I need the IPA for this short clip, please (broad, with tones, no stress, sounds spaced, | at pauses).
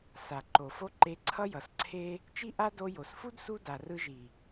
s a˨ ǃ o˨ f o˦ ǃ e˧ ǀʰ ʌ˦ j ʌ˨ s ǀʰ e˦ | t͡ʃ i˦ ʔ a˦ d o˧ j o˨ s f u˦ d s u˦ d a˨ r ɯ˧ ʒ i˨